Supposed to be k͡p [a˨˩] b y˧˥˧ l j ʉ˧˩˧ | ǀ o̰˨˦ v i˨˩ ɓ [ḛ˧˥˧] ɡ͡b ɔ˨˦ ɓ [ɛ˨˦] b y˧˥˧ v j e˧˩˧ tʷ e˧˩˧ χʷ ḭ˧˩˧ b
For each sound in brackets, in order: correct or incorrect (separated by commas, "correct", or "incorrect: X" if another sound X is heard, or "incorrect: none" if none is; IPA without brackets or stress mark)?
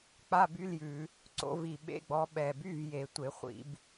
incorrect: a˧˥˧, correct, incorrect: ɛ˨˩